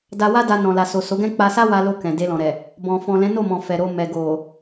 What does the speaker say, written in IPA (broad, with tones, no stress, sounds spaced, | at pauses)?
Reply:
d a˧ w a˦ d a˧ n ɔ̃˨ l a˨ s o˨ s o˨˦ ɡ ɛ̃˦ k͡p a˧ s a˦ w a˧ l o˧ k ɛ̃˨ d e˧ l ɔ̃˨ ɾ ɛ˨ | b ɔ̃˨ f ɔ̃˨ l ɛ̃˨˦ n o˦˨ m ɔ̃˨ f ɛ˨ ɾ o˧ m ɛ˨ ɡ o˨